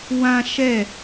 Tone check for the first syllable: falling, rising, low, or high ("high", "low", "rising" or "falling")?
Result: high